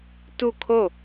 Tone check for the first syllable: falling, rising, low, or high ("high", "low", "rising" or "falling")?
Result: falling